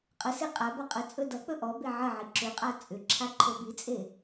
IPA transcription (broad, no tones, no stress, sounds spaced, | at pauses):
qʼ ə s e qʼ a b ʌ qʼ ə t͡sʼ ɵ d ʌ k͡p ɵ ʔ ɔ b e ʕ ə ʕ i ǁ ʏ qʼ a t͡sʼ ʏ ǁʰ a ǃʰ ɵ b i t͡sʼ e